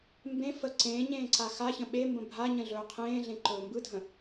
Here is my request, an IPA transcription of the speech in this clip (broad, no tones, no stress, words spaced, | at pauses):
mbẽ fə ǀẽːɲẽː ǀaxaçə̃ ɓembə̃ bʱaɲə̃ ɮɵːqʰẽːɮẽ ǃɵːmbɯdʱə̃